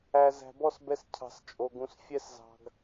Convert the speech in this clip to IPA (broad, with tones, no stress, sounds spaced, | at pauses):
æ˨ z æ̤˨ b ɔ˦˨ s b ɛ˧ s cʰ ɑ̤˨ s t͡ʃʼ o˨ ɡ ũ˨ s fʲ ɛ˧ s z ɑ̤˨ ɡ